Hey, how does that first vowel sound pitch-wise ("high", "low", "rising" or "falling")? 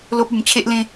high